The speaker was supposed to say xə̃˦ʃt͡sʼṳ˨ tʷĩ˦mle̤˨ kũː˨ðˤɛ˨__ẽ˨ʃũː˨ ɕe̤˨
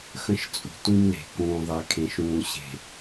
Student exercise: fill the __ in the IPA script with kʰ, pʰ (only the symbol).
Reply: kʰ